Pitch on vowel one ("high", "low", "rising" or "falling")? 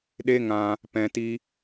high